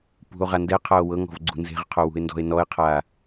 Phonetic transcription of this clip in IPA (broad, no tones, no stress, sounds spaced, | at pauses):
p ṳ o̯ ʁ a n d ɛ qʰ a o̯ w ɤ ŋ ɔ̤ v ɡ͡ǀ ṳ n z e̤ ʁ qʰ o w ṳ e̯ n d ɔ̤ e̯ n ɔ e̯ qʰ a